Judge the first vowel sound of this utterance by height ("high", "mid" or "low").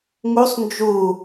high